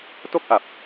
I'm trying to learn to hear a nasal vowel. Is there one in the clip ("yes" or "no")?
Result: no